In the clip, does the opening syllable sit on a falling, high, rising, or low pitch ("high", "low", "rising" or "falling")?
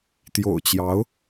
low